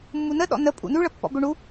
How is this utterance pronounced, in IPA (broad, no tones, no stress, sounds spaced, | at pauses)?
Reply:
mː u n ə ɗ ɔ̰ n ə pʼ ṵ n ʉ ɭ ə pː ɔ̰ b ʏ ɳ u